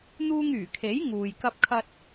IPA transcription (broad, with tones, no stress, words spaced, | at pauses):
n̪uː˧ŋ yː˨˩kʰe˨˥j ŋuː˨j kɐ˧p̚kʰɐ˧t̚